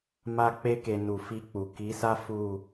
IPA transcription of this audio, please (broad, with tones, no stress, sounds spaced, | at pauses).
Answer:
m a˧ k͡p e˧ k e˨ n u˨ f i˧ k͡p u˨ k i˨˦ s a˦ f u˦˨